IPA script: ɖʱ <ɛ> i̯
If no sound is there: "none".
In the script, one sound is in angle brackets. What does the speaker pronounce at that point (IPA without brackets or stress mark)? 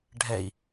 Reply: ɛ